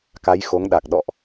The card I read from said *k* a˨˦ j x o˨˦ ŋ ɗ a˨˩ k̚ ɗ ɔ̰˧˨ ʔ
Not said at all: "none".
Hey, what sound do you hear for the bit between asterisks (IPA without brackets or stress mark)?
k